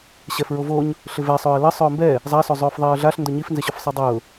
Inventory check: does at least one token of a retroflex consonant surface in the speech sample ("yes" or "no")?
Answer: no